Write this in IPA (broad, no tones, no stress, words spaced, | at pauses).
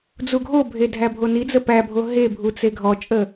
d͡zuɡʱobʱe dʱæbʱonid͡zə pæbʱo ɦebʱu t͡seɡʱɔt͡ʃʼə